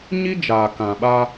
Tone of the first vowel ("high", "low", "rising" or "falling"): high